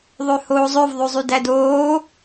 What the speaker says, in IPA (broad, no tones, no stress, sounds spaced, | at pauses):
ðˤ ø h oː zˤ ø v ðˤ ʉ zˤ y d æ d oː